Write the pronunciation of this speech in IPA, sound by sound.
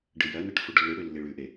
ɖ ɨ j ɐ n ɐ ʈ f u ɖ lː ɨ ɽ ʉ lː i ɭ ʉ ʔ e

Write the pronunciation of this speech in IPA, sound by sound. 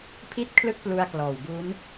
pʰ i˥˩ t̚ kʰ l ɯ˥˩ k̚ p l u˧ a̯ k l ɔː˨˩ w b u˦˥ n

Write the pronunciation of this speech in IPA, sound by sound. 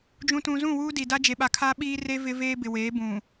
d͡ʒ ũ˨ t ũ˨ z ũ˦˨ w uː˦ d i˨ d a˦ d͡ʒ e˨ ɓ a˨ kʰ aː˦ ɓ iː˦ r e˦ v ɪ˦ v eː˦ b ɪ˨ w eː˨˦ b ũ˨

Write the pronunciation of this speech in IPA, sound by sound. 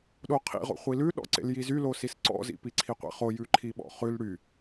ɗ o qʰ ḭ ʁ o̰ χʷ i l ʉ ɗ ɔ̰ ǀ ḛ l j i z y l o s i s ǀ ɔ̰ z ḭ p i ǀʰ i qʷ ḛ χ o j ʉ ǃʰ i ɓ ɔ̰ χ ʉ l ɽ y

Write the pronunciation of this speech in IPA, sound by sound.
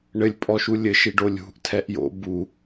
ɳ ɘ lʲ pʼ ɔ ʃ u lʲ ɘ ʃ i ɖ o lʲ ṳ ʔ tʰ ɛ ʔ j o̰ b u

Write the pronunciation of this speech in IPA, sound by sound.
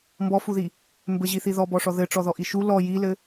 m b ɔ f u ð i | m b ɘ ʑ i θ i ð ɔ b ɔ ʂ ɔ ð ɘ ʈ͡ʂ ɔ ð ɔ ʔ i ʃ u l ɔ j i l ɘ

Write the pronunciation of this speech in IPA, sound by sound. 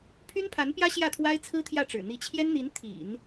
pʰ y˥ n pʰ a˧˥ n p j ä˥ ɕ j ä˥˩ t̪ʰ w a˥ ɪ̯ t͡sʰ ɹ̩˥ t̪ʰ j ä˥˩ ʈ͡ʂ ɻ̩˨˩ n̪ i˧˥ t͡ɕʰ j ɛ˥ n n̪ i˧˥ n t̪ʰ ḭ˨˩˦ n

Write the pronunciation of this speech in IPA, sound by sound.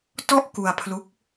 t ɔ˥˩ ʔ k u˧ a̯ pʰ l u˦˥ k̚

